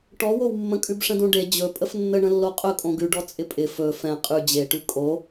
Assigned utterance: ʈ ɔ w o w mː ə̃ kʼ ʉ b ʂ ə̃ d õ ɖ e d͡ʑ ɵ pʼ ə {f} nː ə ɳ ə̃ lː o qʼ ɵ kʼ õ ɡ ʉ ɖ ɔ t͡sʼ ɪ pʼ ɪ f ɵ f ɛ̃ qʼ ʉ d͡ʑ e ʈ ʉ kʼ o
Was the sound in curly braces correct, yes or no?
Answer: yes